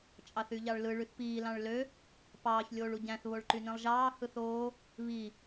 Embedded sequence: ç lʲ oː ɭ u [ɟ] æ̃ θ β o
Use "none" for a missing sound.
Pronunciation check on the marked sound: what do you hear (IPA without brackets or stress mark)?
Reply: ɟ